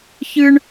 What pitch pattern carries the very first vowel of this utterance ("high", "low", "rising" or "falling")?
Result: high